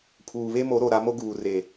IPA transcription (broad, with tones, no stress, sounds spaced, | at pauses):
pʰ uː˨ β e˦ m o˨˦ ɾ o˨ ɾ a˨˦ m o˦ ɡ uː˨ r e˨